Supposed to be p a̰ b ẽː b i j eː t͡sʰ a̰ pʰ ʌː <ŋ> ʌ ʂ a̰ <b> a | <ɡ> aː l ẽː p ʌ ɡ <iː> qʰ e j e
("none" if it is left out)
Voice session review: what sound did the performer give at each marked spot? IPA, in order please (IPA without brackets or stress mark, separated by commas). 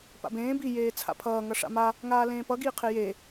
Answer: ŋ, m, ŋ, iː